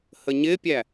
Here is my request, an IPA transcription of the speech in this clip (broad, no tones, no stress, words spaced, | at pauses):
həɲɪpʲæ